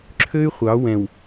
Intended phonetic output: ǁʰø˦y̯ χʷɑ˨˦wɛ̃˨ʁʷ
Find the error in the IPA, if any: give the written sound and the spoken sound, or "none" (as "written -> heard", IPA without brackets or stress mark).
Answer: ʁʷ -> w